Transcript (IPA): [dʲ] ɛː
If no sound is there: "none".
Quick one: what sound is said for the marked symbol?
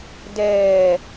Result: d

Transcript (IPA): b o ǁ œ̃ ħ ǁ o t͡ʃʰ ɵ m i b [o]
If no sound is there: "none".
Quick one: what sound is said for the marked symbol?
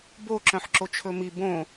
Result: õ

